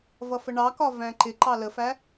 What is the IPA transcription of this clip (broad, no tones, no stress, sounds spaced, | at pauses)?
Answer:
v ʌ f ə ɳ ɑ k ɒ v æ̃ ǃ ɪ ǃ ɑ l ə f æ